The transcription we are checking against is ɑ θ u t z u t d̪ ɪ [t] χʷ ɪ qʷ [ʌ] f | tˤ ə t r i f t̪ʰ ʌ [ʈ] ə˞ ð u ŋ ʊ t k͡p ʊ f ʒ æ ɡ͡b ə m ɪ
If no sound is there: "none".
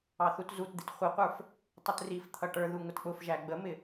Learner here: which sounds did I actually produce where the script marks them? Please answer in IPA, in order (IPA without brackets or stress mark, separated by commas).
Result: t, ə˞, ʈ